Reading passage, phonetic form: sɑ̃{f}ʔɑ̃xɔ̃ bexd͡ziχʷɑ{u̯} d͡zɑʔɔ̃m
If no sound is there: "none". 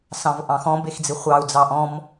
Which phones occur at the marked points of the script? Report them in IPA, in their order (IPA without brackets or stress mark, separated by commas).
v, u̯